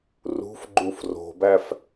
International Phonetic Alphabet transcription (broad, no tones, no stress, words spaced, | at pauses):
rṳfɡ͡ǃuf ro̤bæf